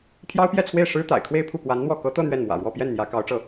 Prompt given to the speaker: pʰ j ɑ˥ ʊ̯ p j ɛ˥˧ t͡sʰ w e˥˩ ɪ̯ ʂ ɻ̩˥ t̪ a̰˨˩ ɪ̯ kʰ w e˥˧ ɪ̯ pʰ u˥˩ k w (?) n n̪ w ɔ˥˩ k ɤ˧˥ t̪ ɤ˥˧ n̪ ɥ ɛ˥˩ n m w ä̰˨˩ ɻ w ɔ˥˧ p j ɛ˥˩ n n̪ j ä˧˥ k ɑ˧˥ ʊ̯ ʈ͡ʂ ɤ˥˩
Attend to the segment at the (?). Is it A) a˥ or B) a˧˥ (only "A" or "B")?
B